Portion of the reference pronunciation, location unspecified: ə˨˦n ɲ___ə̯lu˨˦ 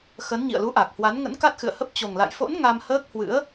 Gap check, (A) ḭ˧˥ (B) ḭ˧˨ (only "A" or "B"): B